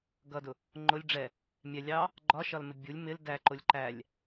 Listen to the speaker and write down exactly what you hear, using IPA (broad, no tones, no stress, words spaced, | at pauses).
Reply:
ɡʌdʊ | ŋ͡ǃʊlʲ ɖ͡ʐɛ | mʲɛ lʲɑ | ɡ͡ǃɒʃɒlmɪ bʲulʲ mɪl dæǃʊlʲ ǃælʲ